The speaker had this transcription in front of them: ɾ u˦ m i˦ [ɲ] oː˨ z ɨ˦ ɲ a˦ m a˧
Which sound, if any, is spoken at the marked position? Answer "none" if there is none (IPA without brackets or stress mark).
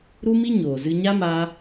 ɲ